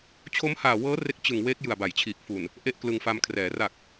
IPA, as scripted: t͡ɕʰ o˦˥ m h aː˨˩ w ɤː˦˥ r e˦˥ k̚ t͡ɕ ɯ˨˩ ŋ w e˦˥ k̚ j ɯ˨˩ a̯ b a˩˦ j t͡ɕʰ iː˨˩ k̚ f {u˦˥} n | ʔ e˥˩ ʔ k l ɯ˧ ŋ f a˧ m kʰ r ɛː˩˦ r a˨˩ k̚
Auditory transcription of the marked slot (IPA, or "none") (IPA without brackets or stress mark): u˨˩